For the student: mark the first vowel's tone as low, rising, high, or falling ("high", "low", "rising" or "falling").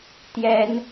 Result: high